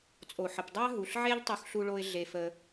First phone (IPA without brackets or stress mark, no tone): t͡sʼ